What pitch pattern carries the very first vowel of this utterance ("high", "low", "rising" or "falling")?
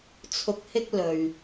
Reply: rising